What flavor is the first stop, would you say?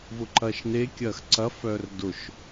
click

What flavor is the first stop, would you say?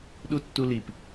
implosive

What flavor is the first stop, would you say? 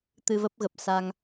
plain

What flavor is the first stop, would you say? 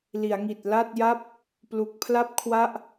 plain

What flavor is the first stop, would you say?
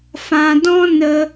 plain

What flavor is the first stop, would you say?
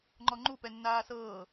click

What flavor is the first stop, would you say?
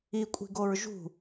ejective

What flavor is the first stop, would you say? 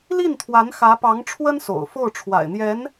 aspirated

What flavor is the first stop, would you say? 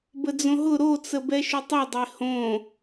plain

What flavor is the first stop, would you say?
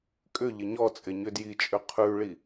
ejective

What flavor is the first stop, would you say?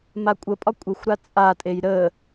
ejective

